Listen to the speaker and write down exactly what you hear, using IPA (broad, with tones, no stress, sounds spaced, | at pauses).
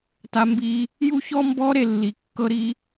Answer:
t a˦ m b i˦ | j u˦ ç ɔ˦ m b ɔ˦ ɾ e˦˨ lː i˨ kː ɤ˦ ɾ i˦